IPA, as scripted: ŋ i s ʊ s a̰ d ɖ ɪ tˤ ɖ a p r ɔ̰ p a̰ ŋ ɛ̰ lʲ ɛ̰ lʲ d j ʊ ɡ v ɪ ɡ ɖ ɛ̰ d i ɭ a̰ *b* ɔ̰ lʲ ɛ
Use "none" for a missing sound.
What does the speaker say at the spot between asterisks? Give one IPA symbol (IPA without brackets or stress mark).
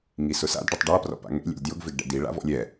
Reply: v